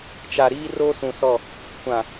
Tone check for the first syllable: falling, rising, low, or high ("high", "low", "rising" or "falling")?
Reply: low